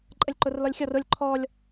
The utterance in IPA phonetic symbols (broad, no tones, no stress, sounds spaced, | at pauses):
ǃʼ ə lʲ ǃ ʊ r l ɔ lʲ xʲ ɔ r ʊ lʲ ǃʰ ɔ lʲ